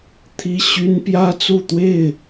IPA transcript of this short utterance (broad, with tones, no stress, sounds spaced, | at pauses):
t̪ʰ i˦ ɕ y˦ n p j ä˦ t͡s u˥˨ t̪ w e˥˨ ɪ̯